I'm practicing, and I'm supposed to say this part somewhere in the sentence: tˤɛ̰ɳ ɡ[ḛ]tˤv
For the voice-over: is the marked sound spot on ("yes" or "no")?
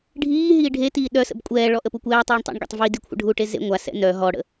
no